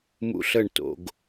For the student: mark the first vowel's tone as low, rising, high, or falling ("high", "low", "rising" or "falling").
high